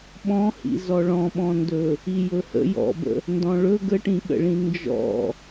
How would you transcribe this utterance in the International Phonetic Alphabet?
ɓɔ̃hḭzɔ ɭɔ̃ɓɔ̃ndɵ | ijɵhə̰ jɔ̰bə̰ | ndɔ̃ɭɵ ɡəʈĩɠə̰ɭĩ nd͡ʒɔ̰

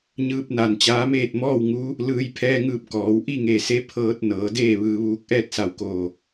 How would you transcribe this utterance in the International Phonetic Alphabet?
ɲɯː˧p̚na˧˩nt͡ɕaː˧˥meː˥˨t̚ mɔː˥˨wŋu˧˥ | lɯː˧j pʰɛː˧ŋɯː˧˩p̚ kɔː˩˧wʔi˥˨ŋe˧˩se˧˥ pʰɤː˧t̚ nɤː˩˧deː˥˨ ʋɯː˧ʋuː˧k̚ ʔɛː˥˨t̚sa˧˩wkoː˧˩

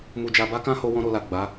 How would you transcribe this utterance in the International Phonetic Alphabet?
mu˧d͡ʒa˧ ba˦ kã˦ ho˦wɔ̃˦ɾo˧la˨ ɡ͡ba˨˦

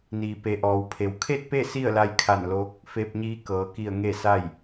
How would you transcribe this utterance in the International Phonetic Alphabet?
niː˩pe˩ʔɔː˩wpʰe˩w kʰe˥˨t̚pe˥˨ si˥˨ə̯la˧jkʰa˧˩nloː˧˥k̚ | fe˧p̚ɲiː˧˥ kɤː˩˧ki˧˩ə̯ ŋe˥˨sa˥˨j

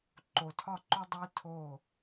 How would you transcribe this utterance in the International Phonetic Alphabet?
ǃo˨tʰɒ˦˨ǃo˦ dˤi˦ tʰo˦˨

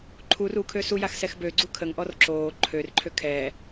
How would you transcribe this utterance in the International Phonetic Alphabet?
ǃʰur ukʰø sujax sɛxbøɡ͡ǀu kʰəŋʔɔr ǁoː ǃʰørǃʰø kʰɛ

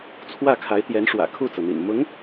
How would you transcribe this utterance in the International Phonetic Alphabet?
t͡sʰwä˥˩kʰa˧˥ɪ̯t̪jɛ˧˥n ʂwä̰˨˩kʰu˥˩t͡sɤ˩n̪ḭ˨˩n mʊ˧˥ŋ

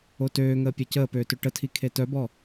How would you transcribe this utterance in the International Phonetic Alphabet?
otøːŋəː pʲɛcəːpøːtø ʈətʰikʰe tœbɔ

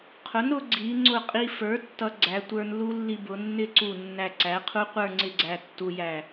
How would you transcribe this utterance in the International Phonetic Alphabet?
qʰʊ˩˥nɾʊ˩˧ ɡ͡ǀi˩˧ŋ͡ǀʊ˧˩qʼi˧fə˞˩˥ tːʌ˧ɡ͡ǀæ˩˧tʷə˞˧nlu˦˥ lːi˧bʊ˩˧nːɪ˥˧ǀu˧˩ nːæ˧˩ǀæ˩˥qʰu˦˥qʷə˞˥˧ ŋ͡ǀɪ˥˧ɡ͡ǀæ˧tːu˧jæ˧˩

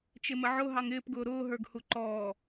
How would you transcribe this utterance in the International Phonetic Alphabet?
t͡ʃɪməʕʊ ɦɑŋɪːp ɡʊːɾʊː ɦə˞ɡhuǃɔː

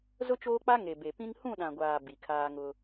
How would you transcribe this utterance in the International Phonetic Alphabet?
zʊ˦t͡ʃoː˦k͡pa˦ ŋe˨be˨pĩ˦ŋ hũ˦˨ɗã˨ɡʷaː˨ bi˨kʰaː˦ŋʊ˦

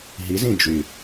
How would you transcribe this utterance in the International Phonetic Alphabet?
ɦizĩ d͡ʒy

